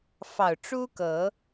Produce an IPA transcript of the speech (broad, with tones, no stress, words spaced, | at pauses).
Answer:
fɑ˨˩ʊ̯ʈ͡ʂu˦kɤ˨˦